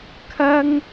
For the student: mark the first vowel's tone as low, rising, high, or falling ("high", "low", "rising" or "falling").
high